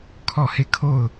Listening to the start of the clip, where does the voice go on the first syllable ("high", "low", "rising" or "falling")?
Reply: falling